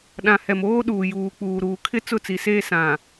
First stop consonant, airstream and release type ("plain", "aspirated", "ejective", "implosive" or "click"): implosive